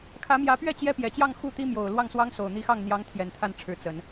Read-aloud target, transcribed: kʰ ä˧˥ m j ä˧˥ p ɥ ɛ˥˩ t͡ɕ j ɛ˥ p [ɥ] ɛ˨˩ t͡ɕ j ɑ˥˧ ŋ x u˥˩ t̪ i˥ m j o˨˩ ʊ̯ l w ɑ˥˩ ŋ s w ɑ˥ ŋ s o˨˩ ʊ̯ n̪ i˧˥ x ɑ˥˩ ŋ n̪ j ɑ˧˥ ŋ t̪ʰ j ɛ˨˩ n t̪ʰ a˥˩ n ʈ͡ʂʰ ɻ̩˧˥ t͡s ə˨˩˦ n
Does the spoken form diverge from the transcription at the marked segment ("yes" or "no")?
yes